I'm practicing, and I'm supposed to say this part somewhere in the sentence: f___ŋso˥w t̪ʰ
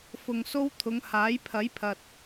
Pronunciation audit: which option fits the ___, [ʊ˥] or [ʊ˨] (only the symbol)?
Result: ʊ˨